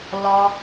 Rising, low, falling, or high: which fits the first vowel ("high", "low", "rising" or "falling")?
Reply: high